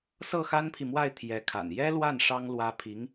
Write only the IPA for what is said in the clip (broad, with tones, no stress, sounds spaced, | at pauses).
s ɤ˥˩ x a˥ n pʰ i˨ m w a˥˩ ɪ̯ t̪ʰ j ɛ˧˥ kʰ a̰˨˩ n j ɛ˥ l w a˥˩ n ʂ ɑ˥ ŋ l w ä˥ pʰ i˧˥ ŋ